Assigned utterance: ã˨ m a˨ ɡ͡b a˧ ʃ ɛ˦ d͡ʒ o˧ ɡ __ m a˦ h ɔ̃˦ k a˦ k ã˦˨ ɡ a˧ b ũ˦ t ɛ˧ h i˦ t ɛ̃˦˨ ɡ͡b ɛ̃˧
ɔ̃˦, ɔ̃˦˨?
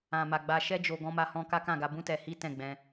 ɔ̃˦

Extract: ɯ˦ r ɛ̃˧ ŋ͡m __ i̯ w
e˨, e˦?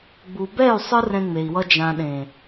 e˨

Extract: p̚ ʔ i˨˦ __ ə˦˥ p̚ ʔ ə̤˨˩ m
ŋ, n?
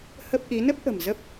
n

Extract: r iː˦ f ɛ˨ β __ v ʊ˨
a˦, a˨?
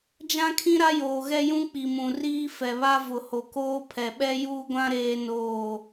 a˦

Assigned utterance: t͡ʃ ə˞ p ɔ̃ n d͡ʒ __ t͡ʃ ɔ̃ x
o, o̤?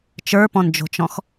o̤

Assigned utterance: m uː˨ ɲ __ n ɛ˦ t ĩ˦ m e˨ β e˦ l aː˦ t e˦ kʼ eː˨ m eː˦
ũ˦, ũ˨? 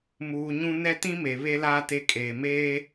ũ˦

